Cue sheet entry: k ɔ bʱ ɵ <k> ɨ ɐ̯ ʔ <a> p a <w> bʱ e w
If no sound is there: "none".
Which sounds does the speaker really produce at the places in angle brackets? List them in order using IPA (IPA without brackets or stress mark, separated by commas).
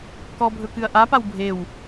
k, a, w